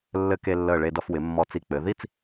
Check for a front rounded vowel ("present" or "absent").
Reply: absent